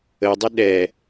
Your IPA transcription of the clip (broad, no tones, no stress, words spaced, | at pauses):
ədˤə ɗɛ